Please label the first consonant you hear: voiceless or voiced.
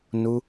voiced